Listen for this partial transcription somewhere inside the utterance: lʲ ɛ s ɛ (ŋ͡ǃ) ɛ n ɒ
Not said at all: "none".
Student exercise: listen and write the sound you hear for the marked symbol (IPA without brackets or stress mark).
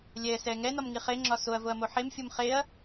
ŋ